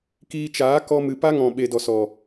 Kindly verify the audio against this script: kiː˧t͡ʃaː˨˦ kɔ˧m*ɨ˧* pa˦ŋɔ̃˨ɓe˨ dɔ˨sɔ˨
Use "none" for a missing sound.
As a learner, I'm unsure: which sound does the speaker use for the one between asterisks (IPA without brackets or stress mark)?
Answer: ɨ˨